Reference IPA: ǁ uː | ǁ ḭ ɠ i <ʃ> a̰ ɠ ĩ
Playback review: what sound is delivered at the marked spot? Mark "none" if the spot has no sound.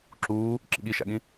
ʃ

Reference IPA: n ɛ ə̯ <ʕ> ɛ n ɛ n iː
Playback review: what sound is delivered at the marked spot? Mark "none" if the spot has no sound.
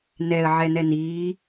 ʕ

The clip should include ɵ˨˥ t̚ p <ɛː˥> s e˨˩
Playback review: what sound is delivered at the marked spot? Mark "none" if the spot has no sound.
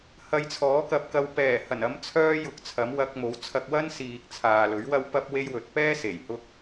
ɛː˥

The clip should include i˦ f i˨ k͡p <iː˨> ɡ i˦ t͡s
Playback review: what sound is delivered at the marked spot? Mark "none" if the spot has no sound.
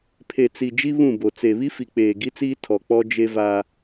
eː˨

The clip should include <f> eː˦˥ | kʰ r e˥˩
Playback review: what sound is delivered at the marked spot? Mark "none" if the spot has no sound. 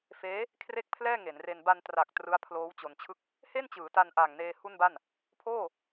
f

